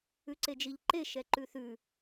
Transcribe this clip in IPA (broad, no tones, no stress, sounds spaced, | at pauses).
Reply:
ʉ ǀ e d͡ʒ i ʎ ǃ e ʃ ɛ ǃ ʉ θ ʉ